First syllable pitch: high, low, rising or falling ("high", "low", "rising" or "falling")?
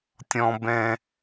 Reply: low